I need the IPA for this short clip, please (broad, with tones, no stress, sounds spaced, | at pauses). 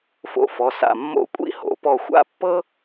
f o̰˧ f ɔ˩˧ s a̰˧˩ mː o̰˧ kʷʼ ḭ˥˧ h o̰˩˧ p ɔ˧˩ xʷ a̰˥ pː ɤ˥